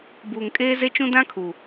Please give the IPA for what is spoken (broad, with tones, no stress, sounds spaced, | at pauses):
b uː˨ ŋ kʼ eː˦ z e˦ t͡ʃ ũ˦ d ã˦ kʰ u˨